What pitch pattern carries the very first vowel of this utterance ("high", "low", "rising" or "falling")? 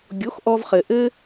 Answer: rising